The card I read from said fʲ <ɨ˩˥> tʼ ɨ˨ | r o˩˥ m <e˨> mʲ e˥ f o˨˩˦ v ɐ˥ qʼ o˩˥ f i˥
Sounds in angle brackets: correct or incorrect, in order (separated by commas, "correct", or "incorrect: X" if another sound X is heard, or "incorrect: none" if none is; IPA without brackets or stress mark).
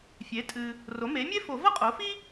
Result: incorrect: e˩˥, incorrect: e˩˥